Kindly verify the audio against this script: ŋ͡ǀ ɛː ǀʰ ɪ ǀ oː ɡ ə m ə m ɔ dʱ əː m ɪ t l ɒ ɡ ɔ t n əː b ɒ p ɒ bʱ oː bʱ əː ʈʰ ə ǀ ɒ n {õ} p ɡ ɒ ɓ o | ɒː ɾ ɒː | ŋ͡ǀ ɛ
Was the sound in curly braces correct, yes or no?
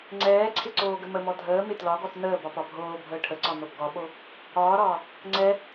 no